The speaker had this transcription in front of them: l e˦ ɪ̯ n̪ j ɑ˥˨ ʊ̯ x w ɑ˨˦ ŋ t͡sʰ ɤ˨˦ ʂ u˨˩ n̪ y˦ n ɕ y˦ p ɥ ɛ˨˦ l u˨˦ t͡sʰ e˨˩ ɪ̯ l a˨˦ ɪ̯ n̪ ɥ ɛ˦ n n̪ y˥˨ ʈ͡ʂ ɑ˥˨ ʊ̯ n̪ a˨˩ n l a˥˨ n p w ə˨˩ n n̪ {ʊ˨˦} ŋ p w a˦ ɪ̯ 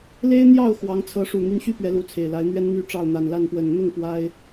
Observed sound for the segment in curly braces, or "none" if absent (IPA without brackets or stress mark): ʊ˥˨